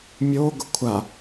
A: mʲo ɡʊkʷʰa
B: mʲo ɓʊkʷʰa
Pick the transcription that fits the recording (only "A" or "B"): A